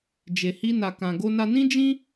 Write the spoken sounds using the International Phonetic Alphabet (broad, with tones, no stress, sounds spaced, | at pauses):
d͡ʒ e˧ h i˦ n a˧ k ã˧ ɡ o˧ n a˧ n ĩ˦ d͡ʒ ĩ˦